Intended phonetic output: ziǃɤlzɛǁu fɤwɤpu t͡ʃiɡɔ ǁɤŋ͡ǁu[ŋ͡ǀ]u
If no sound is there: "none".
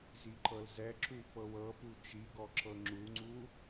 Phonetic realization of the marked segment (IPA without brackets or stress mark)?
ŋ͡ǀ